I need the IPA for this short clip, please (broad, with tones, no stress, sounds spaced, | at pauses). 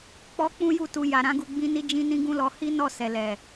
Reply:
k͡p ɔ˦ k͡p ũ˦ j u˦˨ t u˧ j a˨ ɾ ã˨˦ ɡ u˧ ɡ͡b ĩ˧ n i˧ d͡ʒ ĩ˧ n ĩ˦ ɡ ũ˦ l ɔ˧ h i˦ n ɔ˦˨ s ɛ˨ l ɛ˨